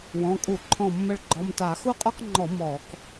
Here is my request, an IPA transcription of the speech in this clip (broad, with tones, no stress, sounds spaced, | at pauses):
w ɔ̃˩˧˩ kʼ u˧˩˧ ǃʰ ɔ̃˧˩ mː ə˧˩ ɭ ɡ͡ǃ ɔ˩˧˩ m t a˧˩˧ x u˦ qʼ ɔ˦ k ŋ͡ǃ ɔ˧˩˧ m ɔː˧˩˧ k